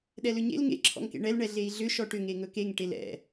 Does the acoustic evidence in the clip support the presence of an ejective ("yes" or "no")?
no